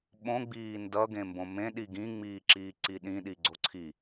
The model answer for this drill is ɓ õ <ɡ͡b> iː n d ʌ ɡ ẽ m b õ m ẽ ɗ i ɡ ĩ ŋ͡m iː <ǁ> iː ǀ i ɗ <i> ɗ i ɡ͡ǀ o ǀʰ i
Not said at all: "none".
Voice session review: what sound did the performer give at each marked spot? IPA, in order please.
ɡ͡b, ǁ, ĩ

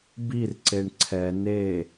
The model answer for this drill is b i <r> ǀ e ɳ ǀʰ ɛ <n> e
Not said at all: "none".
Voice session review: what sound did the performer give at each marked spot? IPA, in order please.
r, n

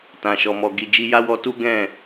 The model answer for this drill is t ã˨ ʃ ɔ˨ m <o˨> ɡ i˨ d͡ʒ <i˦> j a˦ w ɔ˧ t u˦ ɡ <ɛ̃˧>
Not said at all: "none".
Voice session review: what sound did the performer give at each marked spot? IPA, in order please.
ɔ˨, i˧, ɛ̃˦˨

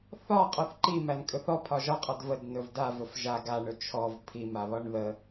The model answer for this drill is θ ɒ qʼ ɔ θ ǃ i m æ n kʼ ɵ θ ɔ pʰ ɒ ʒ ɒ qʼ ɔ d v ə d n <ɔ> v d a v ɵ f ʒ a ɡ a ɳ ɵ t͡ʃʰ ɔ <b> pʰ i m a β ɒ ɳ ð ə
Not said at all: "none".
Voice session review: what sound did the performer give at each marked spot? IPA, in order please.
ɵ, v

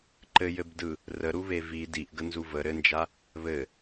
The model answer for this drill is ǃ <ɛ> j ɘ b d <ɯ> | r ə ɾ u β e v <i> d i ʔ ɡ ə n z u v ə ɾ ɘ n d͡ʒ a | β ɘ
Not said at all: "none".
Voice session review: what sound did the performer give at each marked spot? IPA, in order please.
ɘ, ɯ, i

